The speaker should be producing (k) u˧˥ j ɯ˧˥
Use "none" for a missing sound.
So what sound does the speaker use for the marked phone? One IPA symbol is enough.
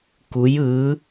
k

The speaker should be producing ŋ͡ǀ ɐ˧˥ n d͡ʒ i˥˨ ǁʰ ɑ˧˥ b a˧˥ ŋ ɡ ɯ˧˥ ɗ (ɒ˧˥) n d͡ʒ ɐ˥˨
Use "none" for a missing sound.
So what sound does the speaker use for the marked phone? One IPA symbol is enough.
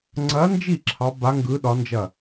ɒ˧˥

